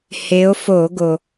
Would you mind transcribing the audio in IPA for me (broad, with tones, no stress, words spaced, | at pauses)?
he˨˦o̯fo˧˩˧ ɡo˩